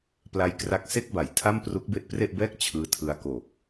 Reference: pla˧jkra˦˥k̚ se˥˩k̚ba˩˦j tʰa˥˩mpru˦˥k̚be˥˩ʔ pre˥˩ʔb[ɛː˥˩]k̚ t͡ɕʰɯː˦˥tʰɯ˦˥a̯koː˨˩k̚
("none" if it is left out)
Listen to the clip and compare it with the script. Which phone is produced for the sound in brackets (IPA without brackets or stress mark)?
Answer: ɛː˥˩